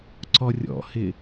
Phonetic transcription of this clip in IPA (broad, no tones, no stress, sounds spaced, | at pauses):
ǀ ɔ rʲ ɔ̰ h ɪ